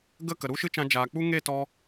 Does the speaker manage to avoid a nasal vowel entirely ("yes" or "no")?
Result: no